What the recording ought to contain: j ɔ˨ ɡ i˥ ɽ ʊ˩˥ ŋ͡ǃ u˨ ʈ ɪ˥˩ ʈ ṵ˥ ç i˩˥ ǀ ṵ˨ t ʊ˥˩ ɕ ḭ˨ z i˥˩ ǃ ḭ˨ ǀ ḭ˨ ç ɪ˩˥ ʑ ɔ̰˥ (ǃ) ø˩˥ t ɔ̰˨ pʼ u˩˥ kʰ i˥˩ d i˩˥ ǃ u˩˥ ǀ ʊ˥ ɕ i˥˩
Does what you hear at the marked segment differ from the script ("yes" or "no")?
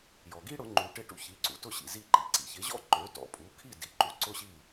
no